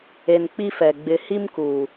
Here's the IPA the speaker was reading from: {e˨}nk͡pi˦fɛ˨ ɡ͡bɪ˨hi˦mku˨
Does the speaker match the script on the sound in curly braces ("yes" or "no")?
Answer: yes